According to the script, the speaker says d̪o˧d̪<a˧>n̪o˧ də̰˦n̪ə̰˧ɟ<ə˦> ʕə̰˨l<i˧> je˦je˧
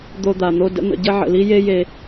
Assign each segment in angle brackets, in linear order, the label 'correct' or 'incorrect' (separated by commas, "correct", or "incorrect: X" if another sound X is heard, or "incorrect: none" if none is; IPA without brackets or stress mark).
incorrect: a˨, correct, incorrect: i˦